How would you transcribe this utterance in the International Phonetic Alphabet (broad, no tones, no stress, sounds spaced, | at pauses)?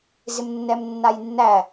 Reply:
z ɪ m nː ɛ m nː a j nː æ